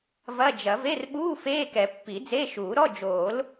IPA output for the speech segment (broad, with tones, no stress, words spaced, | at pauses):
vɐ˧˥˧d͡ʒɐ˨˩˦v e˧˥˧rɓuː˧˥˧ feː˧˥˧kɛ˨˩˦ pːi˨˩˦d͡ze˧˥˧ʃuː˨˩˦ɾɔ˧˥˧ d͡ʒoː˨˩˦l